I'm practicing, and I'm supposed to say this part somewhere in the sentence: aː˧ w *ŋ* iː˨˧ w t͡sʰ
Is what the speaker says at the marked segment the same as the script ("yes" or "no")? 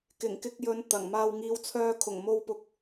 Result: yes